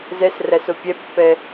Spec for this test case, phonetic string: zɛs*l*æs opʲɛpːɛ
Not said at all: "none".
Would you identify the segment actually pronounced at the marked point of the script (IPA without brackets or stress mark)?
r